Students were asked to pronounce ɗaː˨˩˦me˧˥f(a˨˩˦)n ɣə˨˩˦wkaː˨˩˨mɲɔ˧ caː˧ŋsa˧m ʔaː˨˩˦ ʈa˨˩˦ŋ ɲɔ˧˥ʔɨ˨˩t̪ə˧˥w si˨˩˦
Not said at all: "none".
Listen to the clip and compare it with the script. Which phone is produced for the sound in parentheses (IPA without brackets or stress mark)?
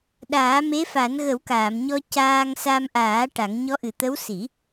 a˨˩˦